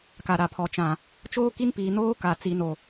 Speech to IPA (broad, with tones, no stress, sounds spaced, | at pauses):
k a˨ ɾ a˨ pʰ ɔ˨ t͡ʃ ã˨ | t͡ʃ oː˦ k i˦ n p iː˨ n oː˦ k a˨ t͡s i˨ n o˨